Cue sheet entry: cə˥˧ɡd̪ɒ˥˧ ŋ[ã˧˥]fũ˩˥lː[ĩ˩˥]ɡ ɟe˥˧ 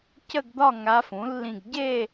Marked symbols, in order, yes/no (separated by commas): no, no